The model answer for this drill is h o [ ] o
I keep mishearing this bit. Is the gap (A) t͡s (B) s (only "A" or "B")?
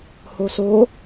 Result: B